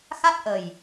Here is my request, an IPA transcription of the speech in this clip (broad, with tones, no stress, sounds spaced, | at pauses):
x a˦˥ t̚ ʔ ə˨˩ j